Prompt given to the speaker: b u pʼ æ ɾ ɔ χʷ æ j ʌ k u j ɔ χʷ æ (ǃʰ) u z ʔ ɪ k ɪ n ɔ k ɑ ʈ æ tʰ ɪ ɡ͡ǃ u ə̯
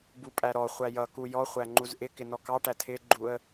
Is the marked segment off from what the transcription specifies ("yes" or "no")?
yes